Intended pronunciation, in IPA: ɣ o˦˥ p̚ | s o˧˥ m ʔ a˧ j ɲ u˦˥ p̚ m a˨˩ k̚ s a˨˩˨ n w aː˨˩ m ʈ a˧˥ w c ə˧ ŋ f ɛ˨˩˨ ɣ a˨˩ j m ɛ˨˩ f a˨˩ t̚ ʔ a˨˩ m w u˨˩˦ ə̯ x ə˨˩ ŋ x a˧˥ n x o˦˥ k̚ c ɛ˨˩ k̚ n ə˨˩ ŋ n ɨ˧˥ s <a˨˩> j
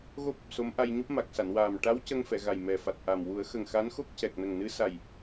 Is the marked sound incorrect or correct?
correct